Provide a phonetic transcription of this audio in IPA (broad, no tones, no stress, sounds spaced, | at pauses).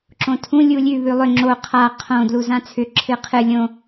ǁ õ tʰ ũ lʲ u lʲ ʉ β ʉ lˠ ʏ ŋ͡ǁ o qʰ a qʰ õ d l u z ã t͡sʰ ʏ ǁʰ ɨ qʰ ɨ lʲ õ